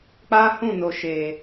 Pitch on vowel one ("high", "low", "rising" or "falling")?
high